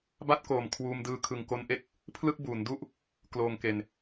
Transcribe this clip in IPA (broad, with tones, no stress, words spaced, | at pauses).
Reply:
ba˥˩t̚koː˨˩m kʰwuː˧mdɯː˧ kʰɯ˨˩ŋko˧nʔe˦˥k̚ | pʰlɯ˥˩k̚ buː˩˦ndu˥˩ʔ | kloː˨˩ŋke˨˩n